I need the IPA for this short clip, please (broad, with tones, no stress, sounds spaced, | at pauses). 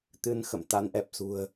t̪ ɨ˧ n x ə̰˧˨ m t̪ a˨˦ n ʔ ɛ˨˩ p̚ s ṳ˨˩ ə̯